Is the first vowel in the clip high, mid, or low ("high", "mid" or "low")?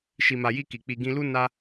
high